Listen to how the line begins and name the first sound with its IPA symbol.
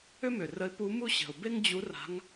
ʏ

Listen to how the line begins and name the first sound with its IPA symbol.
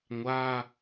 ŋʷ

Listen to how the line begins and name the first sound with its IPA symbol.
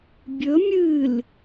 bʲ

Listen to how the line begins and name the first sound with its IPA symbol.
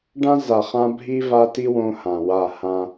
ɖ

